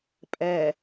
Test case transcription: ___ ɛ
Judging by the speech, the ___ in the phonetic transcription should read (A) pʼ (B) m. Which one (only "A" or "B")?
A